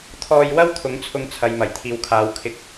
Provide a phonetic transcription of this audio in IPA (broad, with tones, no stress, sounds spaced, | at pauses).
t̪ʰ ɔː˧ j w ɐ˥ w t̪ʰ ʊ˨˥ ŋ t͡sʰ ʊ˧ ŋ t͡sʰ ɐ˨ j m ɐ˨˩ j t̪ʰ iː˨ w kʰ aː˨˧ w kʰ ɪ˧ k̚